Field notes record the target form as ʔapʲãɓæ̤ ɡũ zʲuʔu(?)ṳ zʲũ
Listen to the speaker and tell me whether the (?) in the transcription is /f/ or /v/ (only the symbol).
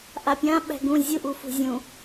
f